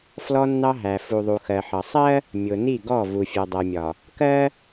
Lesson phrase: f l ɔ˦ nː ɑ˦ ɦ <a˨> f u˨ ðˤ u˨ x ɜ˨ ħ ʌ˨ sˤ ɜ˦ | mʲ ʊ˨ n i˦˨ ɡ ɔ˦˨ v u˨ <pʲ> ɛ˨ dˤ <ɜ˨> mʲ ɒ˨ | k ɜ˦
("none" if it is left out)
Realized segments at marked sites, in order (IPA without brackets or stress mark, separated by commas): æ˨, fʲ, ɜ˨